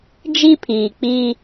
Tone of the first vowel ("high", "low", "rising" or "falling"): high